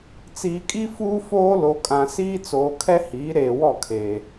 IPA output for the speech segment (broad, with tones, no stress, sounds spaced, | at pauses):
t͡s iː˨ kʼ i˦ f uː˦ f oː˦ l o˨ kʼ ã˨ s iː˦ t͡s oː˨ kʰ ɛ˦ h iː˨˦ ɾ eː˨ w ɔ˦˨ kʰ e˨